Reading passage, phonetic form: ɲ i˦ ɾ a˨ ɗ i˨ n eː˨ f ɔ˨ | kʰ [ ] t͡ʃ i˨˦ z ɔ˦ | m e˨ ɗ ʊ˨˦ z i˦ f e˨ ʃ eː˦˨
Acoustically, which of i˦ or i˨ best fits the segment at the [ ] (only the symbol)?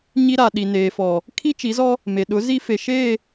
i˦